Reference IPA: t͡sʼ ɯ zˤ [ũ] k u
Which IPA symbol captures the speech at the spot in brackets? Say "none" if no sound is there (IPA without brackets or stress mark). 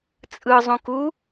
ũ